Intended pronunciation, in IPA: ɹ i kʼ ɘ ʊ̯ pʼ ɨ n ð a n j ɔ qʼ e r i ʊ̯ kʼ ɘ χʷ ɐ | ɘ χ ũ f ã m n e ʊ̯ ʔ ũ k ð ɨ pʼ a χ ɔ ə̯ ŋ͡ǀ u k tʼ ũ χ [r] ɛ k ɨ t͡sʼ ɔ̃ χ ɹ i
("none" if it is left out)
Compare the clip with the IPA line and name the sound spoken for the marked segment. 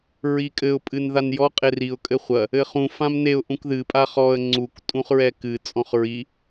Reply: ɹ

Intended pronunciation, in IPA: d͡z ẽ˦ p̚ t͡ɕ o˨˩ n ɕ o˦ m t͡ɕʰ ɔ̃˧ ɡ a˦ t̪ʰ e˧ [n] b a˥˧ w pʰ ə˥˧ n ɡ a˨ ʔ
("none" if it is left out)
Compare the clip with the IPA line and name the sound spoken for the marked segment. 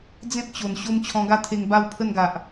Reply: ŋ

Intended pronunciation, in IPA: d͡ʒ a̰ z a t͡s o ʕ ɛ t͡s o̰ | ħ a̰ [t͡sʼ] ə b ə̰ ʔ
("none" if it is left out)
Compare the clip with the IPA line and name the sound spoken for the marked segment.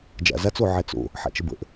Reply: t͡ʃ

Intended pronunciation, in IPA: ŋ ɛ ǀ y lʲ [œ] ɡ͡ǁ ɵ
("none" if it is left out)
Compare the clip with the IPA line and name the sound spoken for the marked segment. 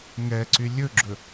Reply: ɵ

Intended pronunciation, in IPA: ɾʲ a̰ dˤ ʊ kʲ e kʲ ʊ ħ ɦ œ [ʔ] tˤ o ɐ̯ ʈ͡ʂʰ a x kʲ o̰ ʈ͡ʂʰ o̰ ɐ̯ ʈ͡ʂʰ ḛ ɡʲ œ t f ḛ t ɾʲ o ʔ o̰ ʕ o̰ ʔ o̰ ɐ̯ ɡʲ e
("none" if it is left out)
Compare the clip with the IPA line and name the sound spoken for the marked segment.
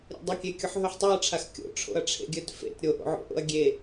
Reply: ħ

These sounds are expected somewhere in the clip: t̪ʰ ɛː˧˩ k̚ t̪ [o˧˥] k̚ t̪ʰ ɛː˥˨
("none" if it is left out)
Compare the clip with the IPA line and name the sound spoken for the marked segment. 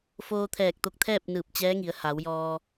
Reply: o˧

